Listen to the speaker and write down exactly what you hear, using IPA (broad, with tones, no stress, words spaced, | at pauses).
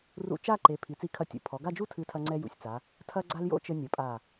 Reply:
rṵ˧t͡ʃa˥˧ǃe˩˧ pʰi˩˧t͡si˧˩kʰɐ˧˩tʲṵ˩˧ pʰɔ˩˧ ɡa˥˧d͡ʒu˥tʰɨ˧tʰɐ˧ ŋ͡ǀɛ˥jṵ˧sʲ t͡sa˩˧ | tʰɐ˥ɡ͡ǀa˥l jo̰˥t͡ʃɘ˧nʲɐ˩˧pʼa˧˩